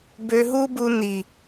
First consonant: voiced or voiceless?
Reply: voiced